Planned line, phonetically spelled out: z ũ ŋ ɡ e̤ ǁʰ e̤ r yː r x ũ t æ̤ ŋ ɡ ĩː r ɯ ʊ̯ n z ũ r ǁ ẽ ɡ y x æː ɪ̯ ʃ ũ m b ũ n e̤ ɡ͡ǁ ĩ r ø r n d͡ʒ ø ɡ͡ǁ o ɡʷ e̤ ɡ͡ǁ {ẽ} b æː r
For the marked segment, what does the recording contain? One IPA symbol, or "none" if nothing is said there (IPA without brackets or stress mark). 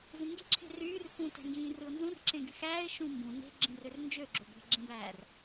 ẽ